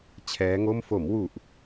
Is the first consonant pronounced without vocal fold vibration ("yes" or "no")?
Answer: yes